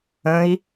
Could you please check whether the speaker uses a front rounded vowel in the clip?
no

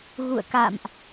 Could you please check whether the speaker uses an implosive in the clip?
no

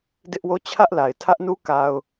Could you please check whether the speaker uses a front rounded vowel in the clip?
no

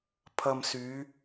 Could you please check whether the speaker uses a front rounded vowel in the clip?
yes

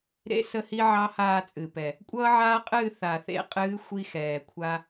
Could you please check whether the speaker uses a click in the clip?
no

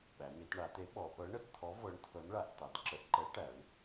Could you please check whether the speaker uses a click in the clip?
yes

